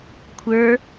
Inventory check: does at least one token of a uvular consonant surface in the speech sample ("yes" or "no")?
no